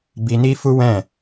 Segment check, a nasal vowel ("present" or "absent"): present